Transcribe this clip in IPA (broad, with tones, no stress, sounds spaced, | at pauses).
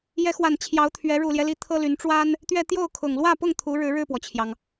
j ɛ˧˥ x w a˨˩ n t͡ɕʰ j ɑ˧˥ ʊ̯ t̪ʰ ɥ ɛ˧˥ ɻ u˨˩ l j ɛ˦ l i˧˥ t̪ʰ ɤ˥ l y˧˥ n ʈ͡ʂ w a˥ n | t̪ ɥ ɛ˥˧ t̪ j o˥˩ ʊ̯ kʰ ʊ˨˩ ŋ l w ä˥˧ p ʊ˥˩ ŋ t̪ʰ u˧˥ ɻ ɻ̩˧˥ ɻ ɻ̩˥˩ p w ɔ˩ t͡ɕʰ j ɑ˩ ŋ